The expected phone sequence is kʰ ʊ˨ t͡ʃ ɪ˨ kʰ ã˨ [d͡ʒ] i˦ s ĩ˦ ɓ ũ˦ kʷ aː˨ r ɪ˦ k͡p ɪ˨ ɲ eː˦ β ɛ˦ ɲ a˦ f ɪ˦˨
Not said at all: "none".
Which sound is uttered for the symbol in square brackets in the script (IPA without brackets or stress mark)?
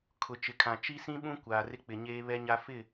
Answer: t͡ʃ